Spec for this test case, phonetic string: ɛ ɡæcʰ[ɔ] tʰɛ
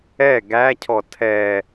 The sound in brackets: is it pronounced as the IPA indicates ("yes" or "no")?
yes